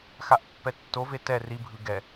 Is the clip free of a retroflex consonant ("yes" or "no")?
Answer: yes